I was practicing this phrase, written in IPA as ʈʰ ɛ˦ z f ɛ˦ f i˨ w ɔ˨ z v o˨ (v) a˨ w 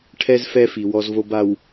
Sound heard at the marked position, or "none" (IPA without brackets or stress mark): b